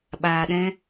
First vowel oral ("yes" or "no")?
yes